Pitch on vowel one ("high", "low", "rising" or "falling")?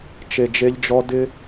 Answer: low